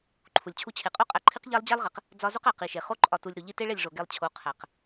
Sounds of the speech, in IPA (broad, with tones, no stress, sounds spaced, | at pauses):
ǃʰ u˨ lʲ t͡ɕʰ u˧ t͡ɕʰ e˨ qʼ o˦ qʼ æ˧ ǃʰ i˦ q ʎ æ˦ lˠ d͡ʑ æ˦ lˠ ʁ e˨ q | d͡z ɒ˦ z o˦ q æ˨ q i˨ ʃ e˨ χ o˦ ǃʼ ɒ˧ t u˧ lʲ ɾ u˨ ʎ i˦ t e˦ ɭ e˦˨ lʲ ʐ o˨ ɡ e˧ lˠ t͡ɕʰ o˨˦ qʰ æ˨ q